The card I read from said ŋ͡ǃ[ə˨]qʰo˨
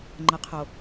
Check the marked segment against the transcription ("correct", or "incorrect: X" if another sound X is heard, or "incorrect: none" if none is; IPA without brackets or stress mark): correct